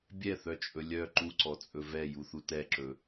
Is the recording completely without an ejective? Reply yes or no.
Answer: no